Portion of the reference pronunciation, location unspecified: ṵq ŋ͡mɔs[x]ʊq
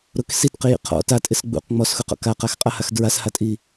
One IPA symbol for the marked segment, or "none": x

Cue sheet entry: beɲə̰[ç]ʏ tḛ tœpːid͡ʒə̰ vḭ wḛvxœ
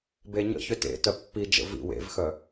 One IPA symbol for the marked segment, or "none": ç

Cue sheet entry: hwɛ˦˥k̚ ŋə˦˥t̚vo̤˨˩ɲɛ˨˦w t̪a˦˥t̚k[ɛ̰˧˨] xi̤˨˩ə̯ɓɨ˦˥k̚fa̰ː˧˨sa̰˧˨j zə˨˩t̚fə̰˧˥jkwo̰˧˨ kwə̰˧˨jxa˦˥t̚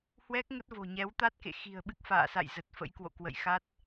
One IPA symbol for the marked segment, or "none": ḛ˧˨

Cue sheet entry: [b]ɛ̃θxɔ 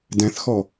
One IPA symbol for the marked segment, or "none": d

